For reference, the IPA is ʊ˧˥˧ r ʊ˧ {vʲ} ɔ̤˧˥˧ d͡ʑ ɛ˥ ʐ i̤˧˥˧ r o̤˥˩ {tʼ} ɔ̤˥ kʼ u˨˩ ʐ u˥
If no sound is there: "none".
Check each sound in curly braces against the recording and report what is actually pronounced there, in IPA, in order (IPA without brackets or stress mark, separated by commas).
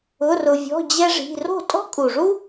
vʲ, tʼ